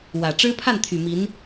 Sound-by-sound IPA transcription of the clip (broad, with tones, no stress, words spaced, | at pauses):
wä˨˩ ʈ͡ʂɻ̩˥ pʰa˥˩nt̪ʰy˨˩ mi˧˥n